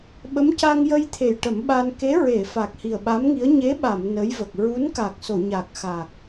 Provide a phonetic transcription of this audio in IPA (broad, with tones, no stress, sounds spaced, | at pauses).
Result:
ɓ ə˧˥ m c a˧ ŋ j ə˧ j t̪ʰ e˨˩ j ʈ ə˨˩˦ m ɓ a˧ n k e˧˥ ɹ e˨˩˨ f a˨˩ k̚ h i˨˩ ə̯ ɓ a˧˥ m ŋ i˧˥ ə̯ ɲ e˧˥ ɓ a˨˩˨ m n ə˧˥ j v ə˨˩ k̚ ɹ u˧˥ n k a˨˩ k̚ s o˨˩˨ ɲ a˨˩ k̚ x a˨˩ k̚